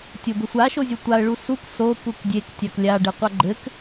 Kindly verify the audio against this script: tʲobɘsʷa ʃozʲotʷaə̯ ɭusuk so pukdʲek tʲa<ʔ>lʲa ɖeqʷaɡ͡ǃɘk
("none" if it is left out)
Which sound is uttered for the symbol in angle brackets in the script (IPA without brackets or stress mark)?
k